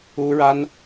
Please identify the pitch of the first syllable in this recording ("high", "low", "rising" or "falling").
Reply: high